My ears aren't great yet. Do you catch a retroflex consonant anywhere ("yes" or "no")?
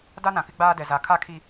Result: no